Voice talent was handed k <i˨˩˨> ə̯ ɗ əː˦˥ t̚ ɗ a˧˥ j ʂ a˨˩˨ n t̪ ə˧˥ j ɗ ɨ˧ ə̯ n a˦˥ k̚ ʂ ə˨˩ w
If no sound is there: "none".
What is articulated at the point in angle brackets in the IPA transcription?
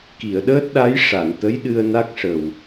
i˨˩˨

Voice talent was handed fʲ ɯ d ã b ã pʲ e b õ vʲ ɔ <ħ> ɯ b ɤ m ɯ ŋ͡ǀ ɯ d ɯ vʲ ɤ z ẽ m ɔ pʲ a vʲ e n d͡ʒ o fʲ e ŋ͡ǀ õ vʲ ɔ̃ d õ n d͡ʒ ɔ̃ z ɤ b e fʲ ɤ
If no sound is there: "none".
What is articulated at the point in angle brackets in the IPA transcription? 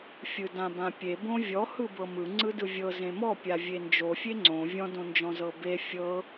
h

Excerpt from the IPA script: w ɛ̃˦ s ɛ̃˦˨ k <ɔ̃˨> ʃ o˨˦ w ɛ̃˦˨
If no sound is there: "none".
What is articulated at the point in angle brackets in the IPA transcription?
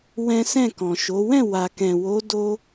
ɔ̃˨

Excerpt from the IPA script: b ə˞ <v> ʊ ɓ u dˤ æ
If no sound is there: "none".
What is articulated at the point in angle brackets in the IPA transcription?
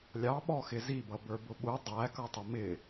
b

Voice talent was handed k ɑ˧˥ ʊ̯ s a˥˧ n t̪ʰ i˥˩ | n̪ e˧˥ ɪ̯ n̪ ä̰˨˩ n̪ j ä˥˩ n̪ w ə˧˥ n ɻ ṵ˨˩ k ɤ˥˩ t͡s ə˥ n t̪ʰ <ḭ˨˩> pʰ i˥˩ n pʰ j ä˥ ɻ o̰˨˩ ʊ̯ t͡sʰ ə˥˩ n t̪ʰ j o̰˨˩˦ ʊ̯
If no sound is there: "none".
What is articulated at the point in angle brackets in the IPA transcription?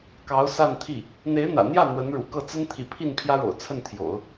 ḭ˨˩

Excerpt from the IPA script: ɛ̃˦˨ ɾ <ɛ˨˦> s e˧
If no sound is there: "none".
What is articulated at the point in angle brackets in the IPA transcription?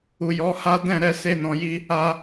ɛ˨˦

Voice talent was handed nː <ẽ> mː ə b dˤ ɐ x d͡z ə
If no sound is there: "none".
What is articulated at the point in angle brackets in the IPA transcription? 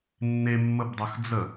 e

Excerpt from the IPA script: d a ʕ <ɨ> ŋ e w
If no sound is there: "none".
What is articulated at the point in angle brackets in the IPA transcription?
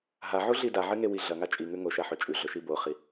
ɨ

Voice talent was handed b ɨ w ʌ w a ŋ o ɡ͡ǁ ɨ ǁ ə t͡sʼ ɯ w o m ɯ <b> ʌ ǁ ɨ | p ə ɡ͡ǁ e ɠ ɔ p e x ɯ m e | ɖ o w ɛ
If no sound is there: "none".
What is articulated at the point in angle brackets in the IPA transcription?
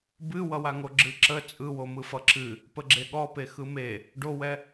f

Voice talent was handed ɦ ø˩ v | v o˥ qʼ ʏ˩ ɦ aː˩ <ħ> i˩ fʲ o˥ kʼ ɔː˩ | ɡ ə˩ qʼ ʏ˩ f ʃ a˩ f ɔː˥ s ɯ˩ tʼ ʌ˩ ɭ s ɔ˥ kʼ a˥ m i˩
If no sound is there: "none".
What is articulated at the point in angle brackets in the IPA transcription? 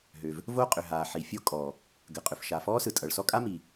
ħ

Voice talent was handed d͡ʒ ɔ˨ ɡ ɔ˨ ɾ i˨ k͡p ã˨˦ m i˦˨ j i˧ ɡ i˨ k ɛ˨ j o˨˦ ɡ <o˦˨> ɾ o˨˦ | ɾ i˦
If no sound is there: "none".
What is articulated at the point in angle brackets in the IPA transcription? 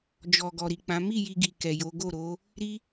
o˦˨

